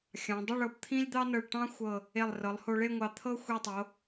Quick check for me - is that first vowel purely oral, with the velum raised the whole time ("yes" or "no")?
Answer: no